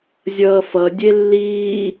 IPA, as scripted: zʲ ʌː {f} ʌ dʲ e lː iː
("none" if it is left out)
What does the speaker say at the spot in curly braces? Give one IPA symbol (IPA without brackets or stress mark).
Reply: f